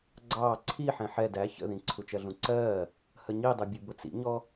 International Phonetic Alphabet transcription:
ɡ͡ǀɑː ǀʰi ħɛ̃ħɛ dæ çə̰ðĩ ǀʰut͡ʃɜɮũǀɜː | həɲidˤɛ bʲubʊt͡sḭɲɔ

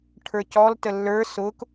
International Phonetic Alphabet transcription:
ʈʰə˞cɔl təlːə˞ sʊk

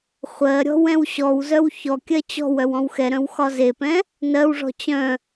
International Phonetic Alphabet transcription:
χʷɜɾʲɔ̤w ɛ̃wɕɔwzœw çɔ kʲɜt͡ɕɔ̤wœw ɔ̃wxɛɾœ̃w xɒzepɛ̃ | nɜwʐɔ̤ t͡ɕœ̃

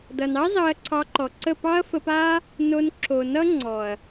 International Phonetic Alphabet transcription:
dʌ˨nɑ˦ zɑ˧ɐ̯ǀʰɑ˧ǃɔ˨ǀə˦˨ pɑ˦ɐ̯fə˧pa˦ | no˧n ǁʰo˨nʌ˦ŋ͡ǀɔ˨ɐ̯

